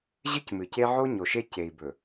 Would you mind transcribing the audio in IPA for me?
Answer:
ʑɨ˦cmɨ˨ce˦ ʕo˦ɲo˨ʃe˦ ce˨i̯bɵ˨

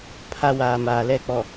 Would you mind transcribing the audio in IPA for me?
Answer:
pʰa˦waː˨maː˨lɛ˦˨ k͡pɔ˨

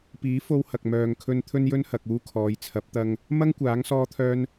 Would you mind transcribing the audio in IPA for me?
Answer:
piː˨˥ fo˧whɐ˨k̚mœː˨ŋkʰɵ˧n t̪ʰɵ˧njɵ˧nhɐ˨k̚ uː˧kʰɔː˨˧jt͡sʰɐ˨˥p̚t̪ɐ˧ŋ | mɐ˥ŋkʷaː˨˥ŋ sɔː˧t̪ʰœː˧n

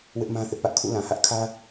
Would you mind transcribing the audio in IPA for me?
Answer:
wɪ˦ʔmã˦ θɪ˦ʔpä˦ʔ kʰṵ˦˨lã˨ hä˦ʔkʰä˦

